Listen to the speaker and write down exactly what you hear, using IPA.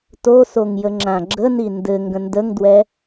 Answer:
t o s o ŋ j ə ŋ͡ǁ ã ɡ͡ǁ ə n i n d ɘ ŋ ɡ ə̃ n d ə ŋ d w ɛ

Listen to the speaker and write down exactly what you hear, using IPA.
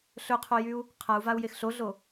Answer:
ɬ ɵ qʰ o j y u̯ | qʰ a u̯ v a u̯ j e x ɬ o ɮ o

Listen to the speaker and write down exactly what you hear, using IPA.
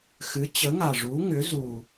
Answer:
x ɨ˨˥ t͡ɕ ə˨˥ ŋ a˨˩ ʐ u˨˥ ŋ ʏ˨˥ z u˨˩

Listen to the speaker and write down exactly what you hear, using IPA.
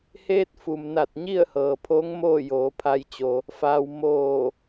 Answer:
h eː˧ t̚ f u˩ m n a˧˩ t̚ ɲ i˥˨ ə̯ h ɤː˩ pʰ oː˧˥ ŋ m oː˥˨ j oː˩˧ pʰ a˧ j t͡ɕ o˧ | f aː˧ w m oː˧˩

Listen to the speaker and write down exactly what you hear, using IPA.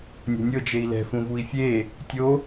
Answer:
nʲ ɔ̤ nʲ ɤ d͡ʒ e i̯ l ɛ̤ f ũ v u i̯ fʲ e | tʲ o

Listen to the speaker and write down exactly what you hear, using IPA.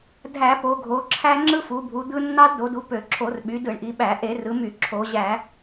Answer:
dʱ æ˧˩˧ p o˩˧ ɡʱ o˩˧ ǁʰ æ˦ ŋ͡ǁ ɯ˦ f u˩˧ bʱ u˩˧ d̪ ɯ˦ nː ɑ˦ z d o˩˧ d u˩˧ p ø˧˩˧ ǁʰ o˧˩˧ r ɓ y˩˧ d ɯ˧˩˧ ɳ ʔ i˩˧ ɓ æ˧˩˧ ʔ e˧˩˧ r ɯ˩˧ m y˧˩˧ ǁʰ o˩˧ ʑ æ˧˩˧

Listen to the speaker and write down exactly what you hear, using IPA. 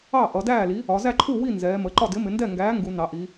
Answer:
ɑ˥˩ ʔ ʌ˩˧ d æː˥˩ l i˨˥ | ɒ˩˧ z æ˥˩ ǃʰ u˥˩ w i˥˩ n z ɛː˩˧ m ə˩˧ ǃ ɒ˥˩ d ɪ˨˥ m ɪ˩˧ n d ɛ˥˩ ŋ ɡ æː˨˥ ŋ ɡ u˩˧ n ɑ˩˧ ʔ i˩˧

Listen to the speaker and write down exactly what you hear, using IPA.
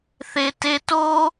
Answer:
θ e t e t o

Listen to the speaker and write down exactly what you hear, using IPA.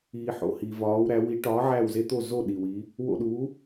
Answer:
iː˩ ħ o̰˩ h iː˩ v ɒː˩˧ w ɾ æ˩˧ w i˨˥ ʈ ɒː˨˥ ʕ æ˦˨ w z e˦ t̪ o˦˨ z o˦˨ ɗ i˩ w i˩˧ | w o̰˦˨ ɗ uː˨˥

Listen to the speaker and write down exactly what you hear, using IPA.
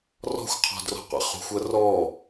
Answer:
r ɔ̤ xʷ qʰ ɔ̤ d r ɔ̤ qʷ ɛ̰ χ ṳ xʷ ɜ r ɔ

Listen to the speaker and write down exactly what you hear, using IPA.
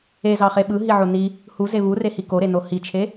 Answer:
e z ɑ χ e ɓ ɯ ɦ i ʕ o n i | h u z e β u r e h i k o ɾ e n o h i t͡ʃʰ e

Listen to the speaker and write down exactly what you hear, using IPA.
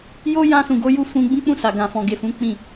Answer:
j o˦ j ã˧ s ũ˨ ɡ o˧ j u˧ f ũ˧ ɡ͡b ũ˦ k͡p ũ˦˨ s a˨ ɡ ã˨ f ɔ̃˨ ɡ e˨ f ũ˨˦ k͡p ĩ˦˨

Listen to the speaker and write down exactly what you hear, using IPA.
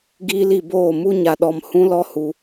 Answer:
ɡ iː˦ l i˧ b oː˦˨ m u˦ ɲ a˧ ɗ ɔ˧ m h ũ˦ l ɔ˦ h u˧

